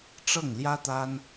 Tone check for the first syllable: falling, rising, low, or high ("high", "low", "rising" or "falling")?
falling